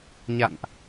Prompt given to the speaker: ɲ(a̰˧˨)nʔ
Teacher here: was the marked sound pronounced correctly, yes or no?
yes